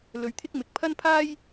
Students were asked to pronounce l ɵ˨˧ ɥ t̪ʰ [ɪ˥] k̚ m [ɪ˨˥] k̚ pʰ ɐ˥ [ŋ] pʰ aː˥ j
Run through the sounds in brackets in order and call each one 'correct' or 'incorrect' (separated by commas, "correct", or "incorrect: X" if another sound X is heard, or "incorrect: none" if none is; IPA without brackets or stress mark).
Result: correct, correct, incorrect: n